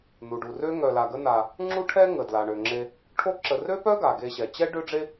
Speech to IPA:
nu˩ɖu˩ rø˦ ŋœ˨la˨ɡə˦ na˨ | ŋ͡ǁu˥ʈʰɛ˥ ŋə˩dla˩ ɳø˩ŋ͡ǁe˨ | ʈʰo˦ǁə˨ rø˦pœ˦ɡa˩ ɡe˨ɕɛ˩t͡ɕɛ˦ ɖø˥ɖ͡ʐe˥

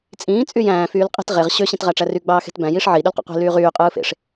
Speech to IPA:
t͡sʼĩː t͡sʼyjæ̃ː fyːlqʼi̤t ʁeʁ ɕø ɕĩtʁæʈ͡ʂæry ɡ͡bɑːxe̤tbæ̃ jiʂʕi ɗylqo̰qʷi̤ lyːʁyː qʼɯːfḛʂ

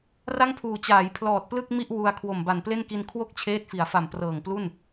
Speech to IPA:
ra˥˩ŋpʰuː˨˩ t͡ɕaː˩˦j pʰlɔː˨˩t̚plɯ˥˩k̚mi˥˩ʔ wu˧a̯ kʰwo˨˩mba˨˩nple˥˩nki˧n kʰwo˥˩k̚t͡ɕʰeː˦˥t̚fi˩˦a̯fa˨˩m prɤː˨˩ŋplu˥˩n

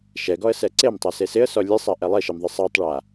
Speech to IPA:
ʃɛɡɔə̯sɛ ǀemtˤase sɪə̯sɔ lʲesˤaʔɛ lˠeʃemðˤɪ sˤatˤɭa

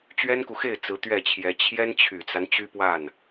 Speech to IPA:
t͡ɕɥɛ˥nku˨xe˥˩ɪ̯ t͡sɹ̩˧˥t̪ɥɛ˥˩t͡ɕʰjɛ˧˥ t͡ɕʰjɛ˥nt͡ɕʰy˨˩t͡sa˦n t͡ɕy˥ pwa˥˩n

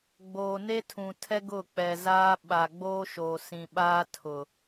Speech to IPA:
ɡ͡boː˨ne˦tʰũ˨tʰɛ˦ ɡʊ˦˨k͡pɛ˨zaː˦ ɓa˨ ɡ͡boː˦ʃoː˨ sĩ˨ɓaː˦ tʰʊ˨

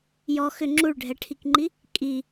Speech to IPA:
jɔ xʏ ŋ͡ǁuɭɖʱɛʈʰikŋ͡ǃi | kʼi

